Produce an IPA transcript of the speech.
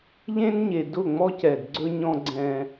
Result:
ʎ ẽ˦ n ɲ e˨ d ʊ˦˨ ŋ͡m ɔ˦ c ɛ˨ d ɡ͡ǀ ɵ˦ ɲ ɔ̃˦ ɡ͡ǀ ɛ̃˦

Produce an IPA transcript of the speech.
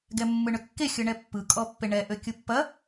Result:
ɡ ɛ mː ɯ ɳ ø kː e xʲ ɯ ɳ ɛ pː ɯ kʼ ɔ pː e ɳ ɛ ʔ ø kʲ ɯ pː ɐ

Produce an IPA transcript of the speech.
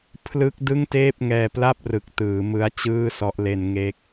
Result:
pʰ l ɯ˦˥ k̚ d ɯ˥˩ ŋ t eː˥˩ p̚ ŋ ɛː˧ p l a˥˩ p̚ r ɯ˨˩ k̚ t ɯː˩˦ m ɯ˦˥ a̯ t͡ɕ ɯː˥˩ s ɔ˦˥ ʔ l e˧ n ŋ e˦˥ k̚

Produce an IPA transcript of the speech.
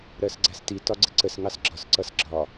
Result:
ɾ ɜ s ɡ͡ǀ æ s t i t ɒ ɡ͡ǀ ɪ ǀ ə s ŋ ɑ s ɡ͡ǁ ɒ s ǀ ʌ s ɡ͡ǁ ɒ

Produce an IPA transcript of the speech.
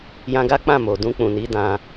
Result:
j ã˧ ɡ a˦ k͡p ã˦˨ m o˨ d ũ˧ k͡p ũ˨ n i˨˦ d ã˧

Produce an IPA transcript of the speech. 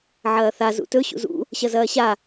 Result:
ʕ ɐː θ a z ṵ t ɵ ɕ ṵ z ṵ | ɕ ɐ z ɐː ɕ a

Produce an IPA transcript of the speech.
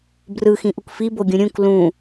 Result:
b r ɯ x ĩ ʔ u k f i b o ɡʲ ũ ɾʲ ũ k l ũ

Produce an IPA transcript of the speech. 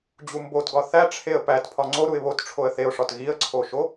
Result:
d͡ʑ u m b o t ɡ ɒ θ æ ʈ͡ʂʰ e ə̯ p æ t pʰ ɒ ŋ͡ǀ o ɾ u ɪ̯ β o t ʈ͡ʂʰ o ə̯ θ e ʊ̯ ʂ ɒ t ɣ i ə̯ ǀʰ o ʃ o

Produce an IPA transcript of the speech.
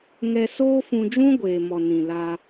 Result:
ŋ ɛ˧ s oː˦ f ũ˧ d͡ʒ ũ˦ ɡʷ eː˨ m ɔ˨ n ĩ˨ l a˧

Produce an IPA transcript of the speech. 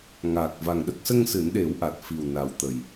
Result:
ŋ aː˨˩ k̚ v a˨˩ ŋ ɗ ə˦˥ k̚ s ə˧ ŋ s ɨ˨˩˦ n ɗ e˨˩˦ w ʔ a˨˩ t̚ f i˨˩ w n a˨˩ w t̪ ə˨˩ j

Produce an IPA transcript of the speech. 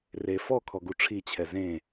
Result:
r e f ɔ kʰ ɔ ɡ u ʈ͡ʂʰ i t͡ɕʰ ɛ z ẽ

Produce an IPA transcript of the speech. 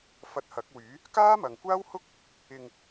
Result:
f ɐ˧ t̚ h ɐ˨˥ k̚ w yː˨˥ | k aː˥ m ɐ˨ ŋ kʷ aː˥ w h ʊ˥ k̚ | ɪ˧ ŋ

